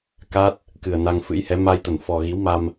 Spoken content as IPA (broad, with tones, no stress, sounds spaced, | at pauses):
k a˦˥ t̚ | k ɨ˨˩ ə̯ n a˧ ŋ f ɨ̰˧˥ j h ɛ˨˦ m a˧ j t̪ ə˧˩ n f ɔ˨˩ ɣ i˨˦ w m a˧ m